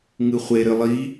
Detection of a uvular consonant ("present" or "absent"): present